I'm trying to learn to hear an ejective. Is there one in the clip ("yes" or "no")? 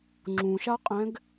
yes